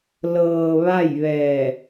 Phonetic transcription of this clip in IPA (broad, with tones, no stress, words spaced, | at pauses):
lɤː˧ʋa˥˨jʋɛː˧˩